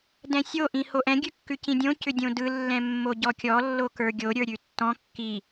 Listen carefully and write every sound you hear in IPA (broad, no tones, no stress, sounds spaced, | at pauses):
d ɛ̃ sʲ o ʔ ĩ h o ʔ ɛ̃ ɡʲ ʉ kː ʉ c ĩ dʲ õ c ʏ dʲ õ d ɯ lː ɛ̃ mː o ɟ ɔ kʲ ɔ lː o k ə˞ ɡʲ o ɾʲ ə˞ ɾʲ ʉ tː ɔ̃ kː i